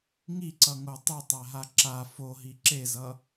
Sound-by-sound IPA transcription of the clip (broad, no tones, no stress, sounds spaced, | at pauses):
ŋ i ǀ ʌ ŋ o tˤ u tˤ a ɦ a ǁ a f o ɦ i ǁ e z ʌ